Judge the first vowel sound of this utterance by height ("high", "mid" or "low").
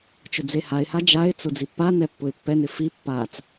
high